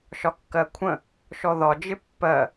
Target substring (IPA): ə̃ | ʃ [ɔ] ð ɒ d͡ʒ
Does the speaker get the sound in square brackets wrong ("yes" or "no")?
no